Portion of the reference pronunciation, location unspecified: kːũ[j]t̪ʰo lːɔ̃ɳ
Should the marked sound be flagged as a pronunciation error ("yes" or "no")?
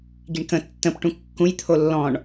no